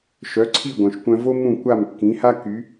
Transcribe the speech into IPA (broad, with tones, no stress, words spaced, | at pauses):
ʃœ˩˥ ǀʰi˥˩ɡʷœ̃˩ʃkʷœ̃˧vo˥ mũ˥˩kʷa˥˩mkːĩ˩˥ha˥ ky˩˥